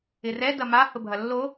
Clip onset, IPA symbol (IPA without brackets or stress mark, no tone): ɪ